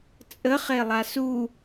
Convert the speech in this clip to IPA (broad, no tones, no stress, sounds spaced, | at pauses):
t͡sʼ ə χ e lˠ a s u